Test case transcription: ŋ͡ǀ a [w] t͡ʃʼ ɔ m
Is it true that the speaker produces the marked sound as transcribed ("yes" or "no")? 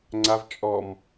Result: no